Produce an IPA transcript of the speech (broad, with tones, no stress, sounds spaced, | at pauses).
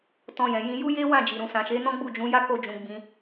t ɔ̃˧ j ɛ̃˨ j ĩ˧ j u˦ j e˦ w ã˦˨ d͡ʒ i˨ ɾ ũ˨ s ã˨ ʃ e˨˦ n ɔ̃˦ ɡ͡b u˦˨ d͡ʒ ũ˨˦ j a˦ k o˧ d͡ʒ ũ˨ ɡ͡b ĩ˧